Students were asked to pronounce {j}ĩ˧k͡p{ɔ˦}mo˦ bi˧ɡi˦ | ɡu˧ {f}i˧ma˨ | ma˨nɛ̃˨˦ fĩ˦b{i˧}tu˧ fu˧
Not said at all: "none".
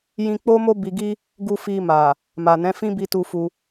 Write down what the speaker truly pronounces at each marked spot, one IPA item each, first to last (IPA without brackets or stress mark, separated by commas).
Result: j, o˦, f, i˧